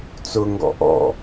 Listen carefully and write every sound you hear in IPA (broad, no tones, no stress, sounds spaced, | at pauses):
t͡s ʊ ŋ ɡ ɔ̰ ʔ ɔ̰